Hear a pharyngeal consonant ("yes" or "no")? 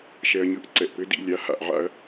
yes